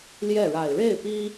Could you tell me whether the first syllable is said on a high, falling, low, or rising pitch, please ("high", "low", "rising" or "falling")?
falling